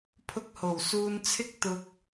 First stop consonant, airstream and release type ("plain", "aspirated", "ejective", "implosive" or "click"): aspirated